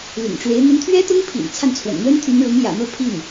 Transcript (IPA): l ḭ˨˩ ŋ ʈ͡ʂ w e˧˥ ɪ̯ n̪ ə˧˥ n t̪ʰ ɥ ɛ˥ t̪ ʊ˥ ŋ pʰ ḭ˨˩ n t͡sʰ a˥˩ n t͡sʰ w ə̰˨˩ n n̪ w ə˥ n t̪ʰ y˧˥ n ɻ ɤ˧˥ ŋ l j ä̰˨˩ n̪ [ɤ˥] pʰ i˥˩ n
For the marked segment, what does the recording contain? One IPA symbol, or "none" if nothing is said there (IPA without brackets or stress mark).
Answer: ɤ˥˧